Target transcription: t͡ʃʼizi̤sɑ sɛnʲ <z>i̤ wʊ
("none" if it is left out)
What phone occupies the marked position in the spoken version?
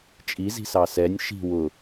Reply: ʃ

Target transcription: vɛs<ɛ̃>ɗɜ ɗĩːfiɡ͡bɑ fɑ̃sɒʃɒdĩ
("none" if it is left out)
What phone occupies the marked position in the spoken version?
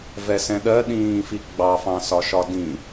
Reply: ɛ̃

